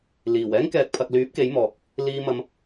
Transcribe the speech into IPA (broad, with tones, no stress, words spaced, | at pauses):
liː˨˩w ɛː˥ŋkɛː˨k̚pʰɐ˨k̚lyː˨˥p̚ ke˨˥jmɔː˨k̚ | liː˧mɐ˧m